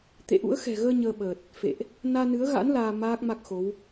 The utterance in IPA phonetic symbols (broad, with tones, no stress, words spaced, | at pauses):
t̪ḛ˧˨ʔṵ˧˥ə̯ xɛ̤˨˩ɣəː˧ ɲəː˧ɓəː˨˩t̚ | fḛ˧˨ʔ | naː˧ nɨ˨˦ə̯ɣa̰˧˥n laː˧maː˦˥k̚ma˦˥k̚xo˨˦w